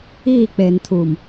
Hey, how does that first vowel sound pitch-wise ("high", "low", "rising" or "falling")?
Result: falling